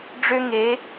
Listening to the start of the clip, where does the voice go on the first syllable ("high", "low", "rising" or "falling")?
high